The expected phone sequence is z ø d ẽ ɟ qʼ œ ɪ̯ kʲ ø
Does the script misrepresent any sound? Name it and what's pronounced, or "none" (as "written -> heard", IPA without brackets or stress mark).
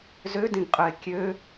ɟ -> ɡ